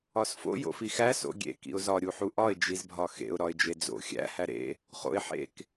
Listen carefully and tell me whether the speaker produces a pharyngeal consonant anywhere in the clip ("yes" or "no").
yes